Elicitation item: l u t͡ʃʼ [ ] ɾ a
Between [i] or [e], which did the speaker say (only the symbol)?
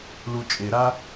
e